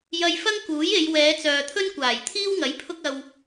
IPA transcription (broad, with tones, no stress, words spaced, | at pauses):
jɐ˧jfɐ˥ŋ kuː˨˥je˨˧j wɛː˨˧t͡sœː˨t̪ʰɵ˥nkʷaː˨˩j t̪ʰiː˥wŋɐ˨˥j pʰʊ˧k̚ɐ˨w